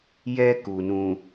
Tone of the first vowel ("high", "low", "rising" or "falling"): high